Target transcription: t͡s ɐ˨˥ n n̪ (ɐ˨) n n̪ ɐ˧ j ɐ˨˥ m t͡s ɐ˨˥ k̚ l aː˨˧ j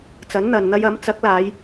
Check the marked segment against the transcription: correct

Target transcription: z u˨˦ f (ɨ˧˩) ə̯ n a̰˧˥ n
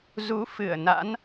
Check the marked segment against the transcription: correct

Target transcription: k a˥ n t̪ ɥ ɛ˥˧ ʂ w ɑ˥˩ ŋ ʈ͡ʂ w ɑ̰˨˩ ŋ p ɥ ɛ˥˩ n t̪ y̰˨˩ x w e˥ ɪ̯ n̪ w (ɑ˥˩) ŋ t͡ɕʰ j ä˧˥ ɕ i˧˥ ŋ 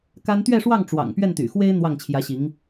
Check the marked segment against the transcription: correct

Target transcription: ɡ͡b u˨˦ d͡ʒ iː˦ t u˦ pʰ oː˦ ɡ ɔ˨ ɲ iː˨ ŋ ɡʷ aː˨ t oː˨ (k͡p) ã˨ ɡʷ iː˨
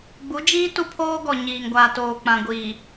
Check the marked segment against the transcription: correct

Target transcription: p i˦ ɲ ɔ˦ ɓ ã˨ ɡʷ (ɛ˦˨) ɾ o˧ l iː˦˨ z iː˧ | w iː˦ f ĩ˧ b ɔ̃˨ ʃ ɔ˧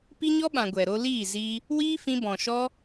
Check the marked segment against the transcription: incorrect: ɛ˨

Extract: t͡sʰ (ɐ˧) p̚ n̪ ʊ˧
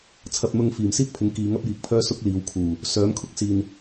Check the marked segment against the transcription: correct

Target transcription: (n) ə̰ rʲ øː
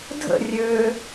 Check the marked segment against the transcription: incorrect: dʱ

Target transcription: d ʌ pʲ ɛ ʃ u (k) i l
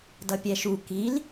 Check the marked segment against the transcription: correct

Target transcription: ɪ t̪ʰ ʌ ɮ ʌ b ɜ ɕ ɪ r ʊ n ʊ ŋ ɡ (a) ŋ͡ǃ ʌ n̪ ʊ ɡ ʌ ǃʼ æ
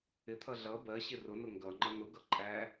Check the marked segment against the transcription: incorrect: ʌ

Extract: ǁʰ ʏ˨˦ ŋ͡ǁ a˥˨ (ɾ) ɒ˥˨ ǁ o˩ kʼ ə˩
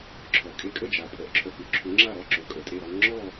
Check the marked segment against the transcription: correct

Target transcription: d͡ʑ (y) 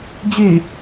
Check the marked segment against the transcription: correct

